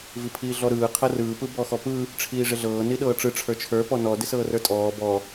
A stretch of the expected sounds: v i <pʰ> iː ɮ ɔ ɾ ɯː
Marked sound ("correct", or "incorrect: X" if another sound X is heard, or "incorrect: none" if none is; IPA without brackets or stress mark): correct